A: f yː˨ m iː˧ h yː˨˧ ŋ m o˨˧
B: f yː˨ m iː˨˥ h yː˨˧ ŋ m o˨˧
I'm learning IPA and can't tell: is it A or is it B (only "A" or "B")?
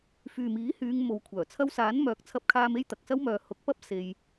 B